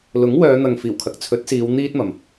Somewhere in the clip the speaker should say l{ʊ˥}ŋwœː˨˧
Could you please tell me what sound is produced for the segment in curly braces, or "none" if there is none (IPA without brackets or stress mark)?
ʊ˨˥